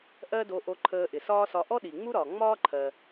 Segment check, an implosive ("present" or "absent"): present